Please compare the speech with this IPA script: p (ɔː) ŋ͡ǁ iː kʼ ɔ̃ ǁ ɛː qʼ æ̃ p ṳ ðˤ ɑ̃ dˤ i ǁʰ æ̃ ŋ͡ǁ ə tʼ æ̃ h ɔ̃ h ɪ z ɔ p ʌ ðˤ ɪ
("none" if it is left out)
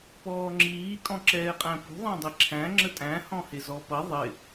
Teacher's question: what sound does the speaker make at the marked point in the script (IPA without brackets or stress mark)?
ɔː